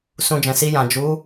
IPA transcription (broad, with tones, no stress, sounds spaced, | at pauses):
s ũ˧ d͡ʒ ɛ̃˨ s i˧ j ã˨ d͡ʒ u˨˦